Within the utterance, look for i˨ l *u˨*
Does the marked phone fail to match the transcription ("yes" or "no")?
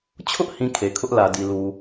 no